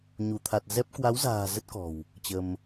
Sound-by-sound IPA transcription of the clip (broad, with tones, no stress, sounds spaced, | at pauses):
ɲ u˧˩ t̪ʰ a˨˩ t̚ z ɛ˦˥ p̚ k w a˨˦ w z a̤ː˨˩ z ə˦˥ t̚ k ɔ̤˨˩ w | t͡ɕ ə˧ m